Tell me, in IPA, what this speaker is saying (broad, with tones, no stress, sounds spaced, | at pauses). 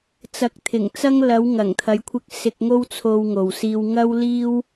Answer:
t͡s ɐ˨ k̚ t̪ʰ ɪ˨˩ ŋ t͡s ɐ˧ ŋ l ɐ˨˧ w ŋ ɐ˨˩ ŋ t̪ʰ ɐ˨˧ j kʷʰ ɪ˧ k̚ s ɪ˧ k̚ ŋ o˥ w t͡sʰ o˧ w ŋ o˨ w s iː˧ w ŋ ɐ˥ w l iː˥ w